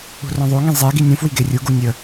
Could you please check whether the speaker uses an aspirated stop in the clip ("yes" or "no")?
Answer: no